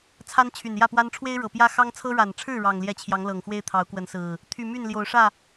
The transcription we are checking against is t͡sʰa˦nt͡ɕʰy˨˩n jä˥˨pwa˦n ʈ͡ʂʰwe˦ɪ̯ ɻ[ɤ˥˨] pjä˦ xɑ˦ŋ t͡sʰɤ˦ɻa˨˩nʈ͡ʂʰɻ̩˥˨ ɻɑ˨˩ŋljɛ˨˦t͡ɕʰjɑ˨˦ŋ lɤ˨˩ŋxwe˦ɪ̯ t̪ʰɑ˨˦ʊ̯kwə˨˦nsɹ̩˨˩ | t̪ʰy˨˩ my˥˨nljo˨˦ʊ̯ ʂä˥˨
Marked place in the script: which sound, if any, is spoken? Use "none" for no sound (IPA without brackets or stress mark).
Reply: ɤ˨˩